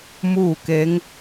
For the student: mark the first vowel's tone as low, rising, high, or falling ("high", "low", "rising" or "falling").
falling